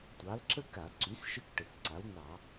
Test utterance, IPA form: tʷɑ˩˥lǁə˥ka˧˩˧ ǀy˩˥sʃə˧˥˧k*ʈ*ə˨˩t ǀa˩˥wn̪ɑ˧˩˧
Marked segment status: correct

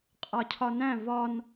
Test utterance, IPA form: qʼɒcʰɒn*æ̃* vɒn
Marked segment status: correct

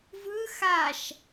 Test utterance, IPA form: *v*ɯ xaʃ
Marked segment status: correct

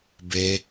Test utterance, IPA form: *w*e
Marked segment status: incorrect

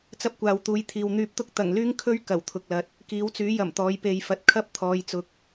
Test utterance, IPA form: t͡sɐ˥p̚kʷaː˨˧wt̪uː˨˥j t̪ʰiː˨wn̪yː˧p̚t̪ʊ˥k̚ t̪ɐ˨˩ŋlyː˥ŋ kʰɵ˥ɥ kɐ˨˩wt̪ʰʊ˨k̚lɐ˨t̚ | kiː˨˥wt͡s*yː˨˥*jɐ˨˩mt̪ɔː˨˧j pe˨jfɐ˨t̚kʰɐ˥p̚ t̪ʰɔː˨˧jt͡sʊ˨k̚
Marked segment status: correct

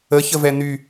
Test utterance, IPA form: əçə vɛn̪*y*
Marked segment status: correct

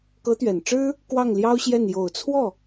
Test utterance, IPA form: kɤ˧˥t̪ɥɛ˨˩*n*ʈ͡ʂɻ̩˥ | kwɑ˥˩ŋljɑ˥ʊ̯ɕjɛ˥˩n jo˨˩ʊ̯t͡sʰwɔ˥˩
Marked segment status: correct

